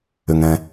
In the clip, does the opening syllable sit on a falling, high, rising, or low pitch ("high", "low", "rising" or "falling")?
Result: low